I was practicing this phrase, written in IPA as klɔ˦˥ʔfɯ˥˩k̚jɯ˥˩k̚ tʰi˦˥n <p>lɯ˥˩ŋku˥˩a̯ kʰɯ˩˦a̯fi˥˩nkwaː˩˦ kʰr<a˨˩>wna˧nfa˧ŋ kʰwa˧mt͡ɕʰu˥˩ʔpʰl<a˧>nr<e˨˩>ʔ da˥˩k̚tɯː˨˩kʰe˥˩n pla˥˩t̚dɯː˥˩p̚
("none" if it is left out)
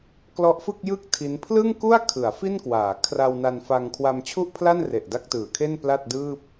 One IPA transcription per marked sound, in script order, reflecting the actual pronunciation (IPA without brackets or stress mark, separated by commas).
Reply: pʰ, a˧, a˥˩, e˨˩